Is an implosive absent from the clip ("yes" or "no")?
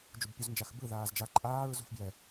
yes